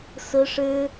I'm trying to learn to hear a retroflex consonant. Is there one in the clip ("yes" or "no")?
yes